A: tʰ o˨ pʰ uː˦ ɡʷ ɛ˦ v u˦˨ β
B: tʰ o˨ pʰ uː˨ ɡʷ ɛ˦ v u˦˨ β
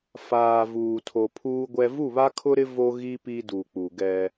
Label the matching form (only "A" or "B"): A